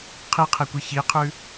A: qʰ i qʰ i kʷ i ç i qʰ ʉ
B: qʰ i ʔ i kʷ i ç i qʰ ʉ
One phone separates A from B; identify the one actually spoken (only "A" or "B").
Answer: A